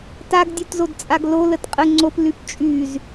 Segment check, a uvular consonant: present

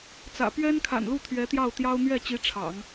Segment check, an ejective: absent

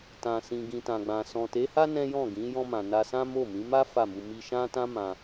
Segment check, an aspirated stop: absent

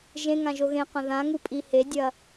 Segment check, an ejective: present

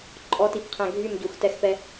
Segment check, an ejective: present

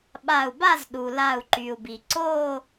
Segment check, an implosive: present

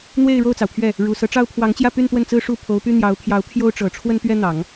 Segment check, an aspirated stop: present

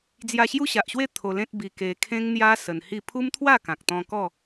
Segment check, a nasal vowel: present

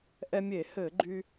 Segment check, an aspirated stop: absent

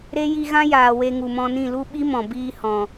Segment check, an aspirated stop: absent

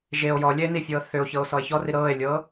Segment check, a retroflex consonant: absent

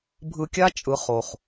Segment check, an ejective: present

